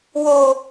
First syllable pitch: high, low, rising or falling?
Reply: high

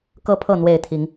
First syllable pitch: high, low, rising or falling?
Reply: high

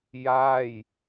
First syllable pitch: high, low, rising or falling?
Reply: falling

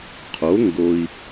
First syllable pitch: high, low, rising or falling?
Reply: rising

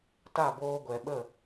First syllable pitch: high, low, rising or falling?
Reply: falling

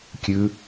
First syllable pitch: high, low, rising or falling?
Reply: high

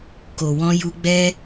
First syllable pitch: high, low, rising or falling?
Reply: low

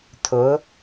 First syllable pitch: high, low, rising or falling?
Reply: rising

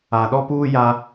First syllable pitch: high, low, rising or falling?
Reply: low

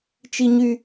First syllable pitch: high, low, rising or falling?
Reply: high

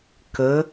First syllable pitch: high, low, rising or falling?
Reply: rising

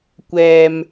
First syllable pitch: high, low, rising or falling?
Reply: low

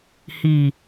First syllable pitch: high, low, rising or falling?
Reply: low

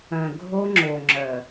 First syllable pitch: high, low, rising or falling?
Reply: low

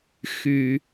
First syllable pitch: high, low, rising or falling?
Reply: low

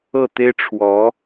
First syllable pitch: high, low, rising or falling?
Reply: falling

